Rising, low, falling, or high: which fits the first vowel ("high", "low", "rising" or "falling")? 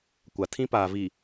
low